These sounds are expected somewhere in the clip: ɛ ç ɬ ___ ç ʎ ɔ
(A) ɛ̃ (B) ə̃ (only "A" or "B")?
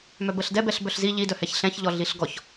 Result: A